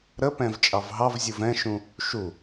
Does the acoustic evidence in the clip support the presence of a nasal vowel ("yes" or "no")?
yes